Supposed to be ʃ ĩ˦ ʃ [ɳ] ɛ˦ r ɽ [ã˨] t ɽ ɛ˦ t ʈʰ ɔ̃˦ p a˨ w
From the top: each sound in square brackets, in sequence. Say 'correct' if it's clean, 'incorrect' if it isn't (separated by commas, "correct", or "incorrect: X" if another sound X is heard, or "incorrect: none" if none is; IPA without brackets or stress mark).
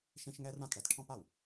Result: incorrect: ŋ, correct